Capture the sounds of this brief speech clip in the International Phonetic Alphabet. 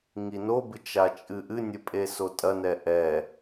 ŋinobɨ t͡ʃat͡ʃʼɨʔɨnʲɘ pʼesotʼɐnɛ ʔɛ

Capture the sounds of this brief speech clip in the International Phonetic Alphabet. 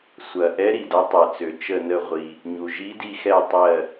sʷɐ˩ʔɛ˨˦ ɾi˩dɐ˨˦tˤɛ˩t͡sø˩ t͡ʃə˧˩nə˧˩ ʁʷi˩ | ɲu˩ ʒi˨˦di˧˩xɛ˧˩ tˤɜ˧˩

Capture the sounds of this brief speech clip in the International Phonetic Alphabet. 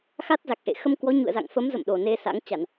xa˦˥t̚za˨˩k̚ʔḛ˧˨ xə˧mkwɔ˨˦ ɲṵ˧˨ə̯za̰˧˨ŋfə˨˦mzə̰˧˨m ɗo˨˩ne˧sa̰˧˥ŋ t͡ɕa˧˩˨n

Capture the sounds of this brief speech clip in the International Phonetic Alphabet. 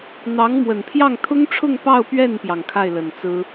n̪ɑ˧˥ŋmwə˨˩npʰjɑ˥˩ŋ t̪ʰʊ˥ŋʈ͡ʂʰʊ˥˧ŋ pɑ˥˧ʊ̯pɥɛ˥˩npjɑ˩ŋ kʰa˥˩ɪ̯lə˨˩nt͡sɹ̩˥

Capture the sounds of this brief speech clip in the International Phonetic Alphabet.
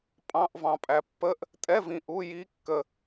pʼɑ̃˧˥˧ʔvɑ̃˨pʼæ˨ pːə˧˥˧ʔ | tʼɛ˧˥˧vĩ˨ ʔu˧˥˧ji˧˥˧ kːə˨

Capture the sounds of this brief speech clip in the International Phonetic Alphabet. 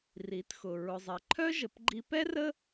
ri˩˧txʊ˩ ɹʊ˩zˤɛ˩ǃʰœ˥ ʒə˩˧pɡ͡ǃi˧pɛ˥rə˥

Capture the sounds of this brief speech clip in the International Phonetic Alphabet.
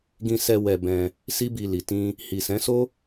ɡĩ˧sɛ˧ wɛ˧bɛ̃˧ | si˦bi˧li˨ tĩ˧ | hi˨ sɛ̃˨˦so˦

